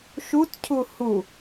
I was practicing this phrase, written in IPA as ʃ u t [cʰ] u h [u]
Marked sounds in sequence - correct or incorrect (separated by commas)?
correct, correct